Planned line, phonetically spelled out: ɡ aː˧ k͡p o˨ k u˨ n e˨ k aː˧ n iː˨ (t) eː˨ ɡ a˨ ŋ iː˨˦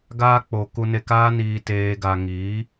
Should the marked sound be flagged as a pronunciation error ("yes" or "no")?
no